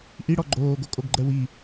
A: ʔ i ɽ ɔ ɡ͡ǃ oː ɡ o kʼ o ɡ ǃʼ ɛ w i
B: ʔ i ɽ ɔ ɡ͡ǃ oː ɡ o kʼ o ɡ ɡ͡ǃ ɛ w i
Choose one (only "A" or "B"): B